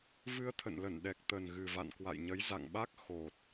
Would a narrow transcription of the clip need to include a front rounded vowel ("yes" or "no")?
no